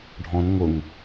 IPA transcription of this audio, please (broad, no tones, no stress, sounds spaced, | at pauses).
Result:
ɖʱ ɔ̃ n ŋ ʊ ŋ